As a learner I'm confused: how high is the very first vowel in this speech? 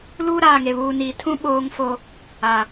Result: high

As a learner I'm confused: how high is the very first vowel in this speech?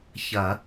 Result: low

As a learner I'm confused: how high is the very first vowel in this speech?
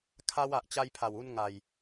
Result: low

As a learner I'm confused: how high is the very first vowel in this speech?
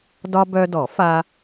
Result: low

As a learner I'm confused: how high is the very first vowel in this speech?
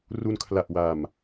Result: high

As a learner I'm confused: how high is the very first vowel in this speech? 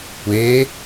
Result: mid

